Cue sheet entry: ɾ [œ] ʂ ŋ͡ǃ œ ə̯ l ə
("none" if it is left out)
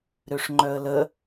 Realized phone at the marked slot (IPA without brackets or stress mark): ø